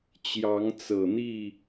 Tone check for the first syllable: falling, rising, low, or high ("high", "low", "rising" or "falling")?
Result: rising